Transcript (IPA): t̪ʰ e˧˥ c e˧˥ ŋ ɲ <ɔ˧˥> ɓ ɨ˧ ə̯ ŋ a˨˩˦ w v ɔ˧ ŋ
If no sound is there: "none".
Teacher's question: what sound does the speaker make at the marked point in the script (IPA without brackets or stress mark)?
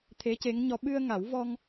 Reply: ɔ˧˥